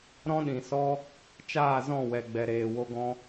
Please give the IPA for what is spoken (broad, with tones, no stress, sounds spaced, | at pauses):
ɾ ɔ̃˦ ɗ ĩ˨ s ɔ˦ | t͡ʃ aː˦˨ z ɔ̃˦˨ w ɛ˨ ɡ͡b ɛ˨ ɾ eː˨ w o˧ ɡ ɔ̃˦